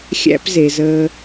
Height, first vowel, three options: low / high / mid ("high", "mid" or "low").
low